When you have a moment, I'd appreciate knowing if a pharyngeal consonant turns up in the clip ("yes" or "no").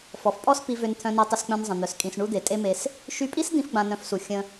no